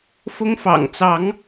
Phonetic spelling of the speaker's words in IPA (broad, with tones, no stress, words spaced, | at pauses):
fʊ˦ŋfɑ̰˨˩ŋt͡sɑ˨˦ŋ